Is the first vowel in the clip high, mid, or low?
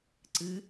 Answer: high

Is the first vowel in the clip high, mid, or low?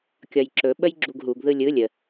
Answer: low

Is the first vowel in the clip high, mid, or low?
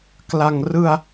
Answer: low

